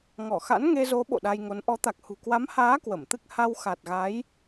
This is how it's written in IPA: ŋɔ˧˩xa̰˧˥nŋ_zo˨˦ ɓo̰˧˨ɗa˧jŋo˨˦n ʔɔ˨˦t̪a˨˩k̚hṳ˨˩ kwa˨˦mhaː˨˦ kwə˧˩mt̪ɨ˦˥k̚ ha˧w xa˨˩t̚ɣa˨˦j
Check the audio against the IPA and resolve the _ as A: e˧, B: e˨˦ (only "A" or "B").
A